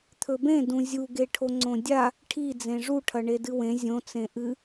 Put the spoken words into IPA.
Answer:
t̪ʰɵbẽ dũzʲuɡeʈʰo ŋ͡ǀõdʲa | ʈʰi d͡zẽʐuʈʰɐɳe dɨwẽ zʲõt͡sẽ ʔɨ

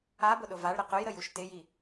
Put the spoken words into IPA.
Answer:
abʊɗʊ vaɭɾə qʊjɾəjuʃ tɪji

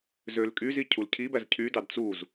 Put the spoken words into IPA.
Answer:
zølkʼyzi cʰulcʰibæz cʰydɑd t͡suz

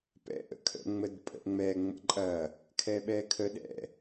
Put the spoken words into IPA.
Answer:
pɛ̰ʔə̰kʰə̰ ŋ͡mədpʼə̰ʔŋ͡mɛ ŋ͡mə̰ǃʼɐ | kʰɛɓɛkʰə ɗɛ̰

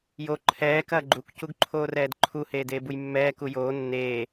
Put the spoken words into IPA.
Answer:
jo ǃʰɛː kɐːɡ͡ǃuk cuɡǃʰoːrɛːdǃʰu heːdeːbujmːɛː kujoː nːeː

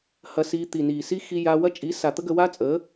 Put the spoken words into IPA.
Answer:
hɐ˧si˧ t̪i˨ni˨ si˦xi˧ja˧wɐ˦ t͡ʃʼi˨˦sa˨ t̪ə˦ɡə˧wa˦t͡sʼə˨˦

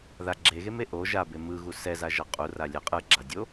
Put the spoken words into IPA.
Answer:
ða ɡ͡ǁeɣeme ʔo ʒabe mɯɣu sɛzaʒʌ qʼuralʲɛ qʼɯɡ͡ǁadʲo

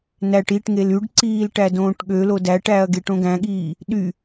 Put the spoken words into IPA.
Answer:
næʈ iʈŋel yɖǀiːl ʈædõːʈɠølo dæʈæɐ̯ ɡeʈõɡæ̃ɠiː | ɗy

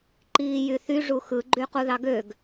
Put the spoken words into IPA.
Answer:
ǃiːjyθy ʐuxɯ ɡ͡ǃyquðɑɡøɡ

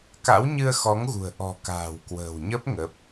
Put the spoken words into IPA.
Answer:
ka̰˧˥wɲɨ˧ə̯xɔ˨˦ŋɣṳ˨˩ə̯ ʔɔ̤˨˩ka̤ː˨˩wkwə̤ː˨˩wɲə˦˥p̚ ŋə˦˥p̚

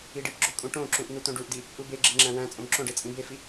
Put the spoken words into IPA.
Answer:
iɖipɡ͡ǁo kʼũʈõǁũʔ n̪ut̪õɖuʔdi | ʔubeɡ͡ǁeŋ͡ǁæ̃ wæ̃t͡sʼõb ǁõɖe t͡sʼĩbefi

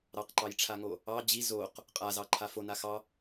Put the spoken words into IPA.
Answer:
ɾɑqǃɑjʈ͡ʂʰaŋo | ɑ d͡ʑi zoq | qʼazɑǃʰa fona xɑ

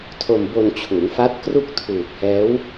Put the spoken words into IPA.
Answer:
tʰo˧mbo˧nt͡ɕʰu˩˦n fa˦˥t̚kru˥˩k̚tʰuː˨˩k̚hɛː˦˥w

